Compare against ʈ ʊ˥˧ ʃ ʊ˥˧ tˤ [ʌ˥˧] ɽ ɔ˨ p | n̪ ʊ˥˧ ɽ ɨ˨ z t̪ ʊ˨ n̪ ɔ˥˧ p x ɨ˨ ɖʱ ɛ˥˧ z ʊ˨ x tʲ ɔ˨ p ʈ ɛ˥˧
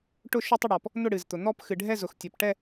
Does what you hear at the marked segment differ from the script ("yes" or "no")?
yes